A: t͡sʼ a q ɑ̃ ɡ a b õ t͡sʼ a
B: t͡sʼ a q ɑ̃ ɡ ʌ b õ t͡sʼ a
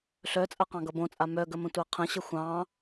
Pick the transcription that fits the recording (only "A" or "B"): B